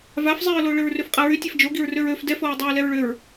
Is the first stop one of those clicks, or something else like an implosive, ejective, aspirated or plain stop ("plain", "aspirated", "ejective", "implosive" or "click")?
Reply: ejective